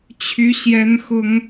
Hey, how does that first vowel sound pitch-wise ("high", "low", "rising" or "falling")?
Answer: high